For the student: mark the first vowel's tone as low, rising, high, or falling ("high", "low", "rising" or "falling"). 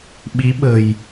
rising